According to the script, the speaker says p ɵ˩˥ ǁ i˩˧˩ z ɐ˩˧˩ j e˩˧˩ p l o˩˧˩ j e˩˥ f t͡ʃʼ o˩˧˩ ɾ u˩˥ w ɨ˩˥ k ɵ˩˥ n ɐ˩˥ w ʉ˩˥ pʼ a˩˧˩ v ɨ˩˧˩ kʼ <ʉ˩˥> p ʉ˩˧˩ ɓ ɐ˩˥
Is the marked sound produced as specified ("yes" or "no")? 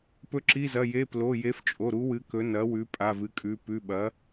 no